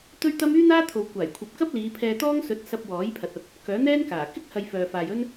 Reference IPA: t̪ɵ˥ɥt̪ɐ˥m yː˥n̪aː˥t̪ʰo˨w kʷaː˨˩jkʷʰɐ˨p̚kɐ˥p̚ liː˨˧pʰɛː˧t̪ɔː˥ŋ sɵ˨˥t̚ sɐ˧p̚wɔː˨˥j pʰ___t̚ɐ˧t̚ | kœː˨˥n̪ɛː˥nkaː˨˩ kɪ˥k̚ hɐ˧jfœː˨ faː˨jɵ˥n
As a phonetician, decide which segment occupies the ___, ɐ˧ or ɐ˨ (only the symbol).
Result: ɐ˨